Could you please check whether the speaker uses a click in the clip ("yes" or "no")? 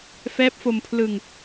no